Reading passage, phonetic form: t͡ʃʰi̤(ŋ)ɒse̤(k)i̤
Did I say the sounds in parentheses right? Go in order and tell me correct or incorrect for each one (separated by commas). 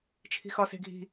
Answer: incorrect, incorrect